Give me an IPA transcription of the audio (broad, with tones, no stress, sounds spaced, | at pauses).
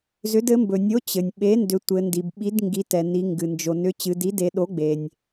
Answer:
z ʏ˩˥ d ɘ˩˥ m b ɵ˩ nʲ o˩˥ t͡ɕ ɘ˩ nʲ ɓ e˩˥ n d ʏ˩˧ tʷ ɘ˩˧ n d i˩ b ɓ i˩˥ d ŋ ɡ i˩˧ t ɛ˩ n i˩˧ ŋ ɡ ɨ˩ n d͡ʒ o˩ n ʏ˩˥ t͡ɕ ɨ˩˧ d i˩˥ d e˩˧ ɗ o˩˥ ɡ͡b e˩ nʲ